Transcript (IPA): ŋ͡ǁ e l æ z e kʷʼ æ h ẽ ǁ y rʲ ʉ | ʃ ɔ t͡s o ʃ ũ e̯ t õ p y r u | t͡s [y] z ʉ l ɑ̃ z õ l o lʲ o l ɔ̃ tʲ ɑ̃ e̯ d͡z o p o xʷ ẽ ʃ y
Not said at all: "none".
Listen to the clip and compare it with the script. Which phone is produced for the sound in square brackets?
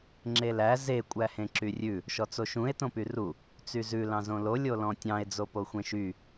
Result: y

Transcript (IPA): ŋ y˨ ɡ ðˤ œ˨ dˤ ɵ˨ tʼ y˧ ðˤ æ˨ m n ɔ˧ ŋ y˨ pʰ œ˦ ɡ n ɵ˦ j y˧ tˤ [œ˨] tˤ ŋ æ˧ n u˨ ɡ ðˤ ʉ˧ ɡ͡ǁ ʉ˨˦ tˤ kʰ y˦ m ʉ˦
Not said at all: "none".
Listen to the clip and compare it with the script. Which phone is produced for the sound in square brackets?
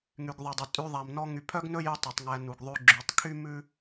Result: ɛ˨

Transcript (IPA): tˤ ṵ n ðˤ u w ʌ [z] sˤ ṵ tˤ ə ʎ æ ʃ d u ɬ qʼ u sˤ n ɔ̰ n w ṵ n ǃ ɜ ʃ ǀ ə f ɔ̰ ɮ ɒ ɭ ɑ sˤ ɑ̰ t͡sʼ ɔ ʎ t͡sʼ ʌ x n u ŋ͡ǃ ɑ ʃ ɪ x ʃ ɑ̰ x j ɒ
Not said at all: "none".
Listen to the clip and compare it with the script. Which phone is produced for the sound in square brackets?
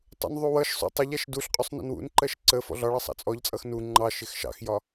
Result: ʃ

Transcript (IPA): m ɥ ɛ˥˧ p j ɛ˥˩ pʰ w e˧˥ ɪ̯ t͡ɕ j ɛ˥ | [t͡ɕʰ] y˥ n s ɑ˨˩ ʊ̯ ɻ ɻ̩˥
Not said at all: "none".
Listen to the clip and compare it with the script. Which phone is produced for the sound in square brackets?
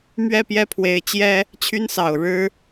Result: t͡ɕʰ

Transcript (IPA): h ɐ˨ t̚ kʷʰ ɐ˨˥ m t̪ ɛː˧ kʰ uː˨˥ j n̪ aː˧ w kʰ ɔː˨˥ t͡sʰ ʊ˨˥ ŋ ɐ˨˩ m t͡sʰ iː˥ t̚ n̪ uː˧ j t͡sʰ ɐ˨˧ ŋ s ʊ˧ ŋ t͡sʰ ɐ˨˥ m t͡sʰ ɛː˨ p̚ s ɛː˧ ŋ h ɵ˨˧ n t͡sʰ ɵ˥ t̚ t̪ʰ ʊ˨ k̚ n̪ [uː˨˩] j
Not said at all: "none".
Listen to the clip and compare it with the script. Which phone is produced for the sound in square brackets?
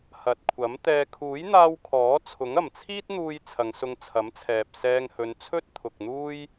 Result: uː˥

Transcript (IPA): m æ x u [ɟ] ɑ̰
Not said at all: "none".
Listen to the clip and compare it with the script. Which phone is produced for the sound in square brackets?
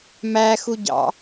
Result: ɟ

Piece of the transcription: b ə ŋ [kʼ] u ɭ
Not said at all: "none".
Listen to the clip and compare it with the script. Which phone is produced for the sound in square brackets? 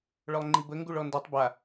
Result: ɡ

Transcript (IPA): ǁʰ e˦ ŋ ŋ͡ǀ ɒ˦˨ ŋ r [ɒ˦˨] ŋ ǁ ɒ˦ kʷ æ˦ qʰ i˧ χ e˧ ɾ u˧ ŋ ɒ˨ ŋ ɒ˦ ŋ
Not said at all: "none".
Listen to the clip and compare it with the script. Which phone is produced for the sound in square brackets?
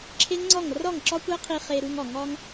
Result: ɒ˦˨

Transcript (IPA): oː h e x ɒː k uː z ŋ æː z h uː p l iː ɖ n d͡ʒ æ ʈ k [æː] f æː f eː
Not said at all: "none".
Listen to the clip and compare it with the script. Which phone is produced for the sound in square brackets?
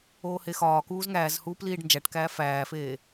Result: æː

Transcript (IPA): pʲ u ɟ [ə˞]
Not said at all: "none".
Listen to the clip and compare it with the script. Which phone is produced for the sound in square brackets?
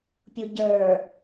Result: ə˞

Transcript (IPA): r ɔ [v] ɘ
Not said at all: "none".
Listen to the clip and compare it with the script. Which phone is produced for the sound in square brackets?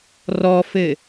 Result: f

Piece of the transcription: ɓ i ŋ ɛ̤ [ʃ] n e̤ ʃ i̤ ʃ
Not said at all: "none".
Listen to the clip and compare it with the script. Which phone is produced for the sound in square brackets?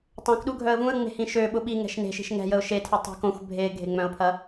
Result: ʃ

